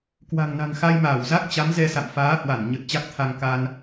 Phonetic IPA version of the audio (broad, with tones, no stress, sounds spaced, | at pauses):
k w a̤˨˩ ŋ n a̤˨˩ ŋ x a˧ j m aː˧˩ w z a˦˥ k̚ t͡ɕ a˨˦ m z ɛ˧ s a̰˧˨ m f aː˨˦ h w a˧˩ n ɲ ə˨˩ t̚ t͡ɕ a˦˥ k̚ t̪ʰ a˧ ŋ k a˧ n